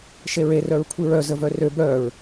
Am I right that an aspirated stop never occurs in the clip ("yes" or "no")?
no